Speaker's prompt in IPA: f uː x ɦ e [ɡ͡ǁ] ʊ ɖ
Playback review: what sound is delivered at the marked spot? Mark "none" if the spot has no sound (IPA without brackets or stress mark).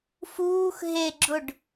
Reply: ɡ͡ǁ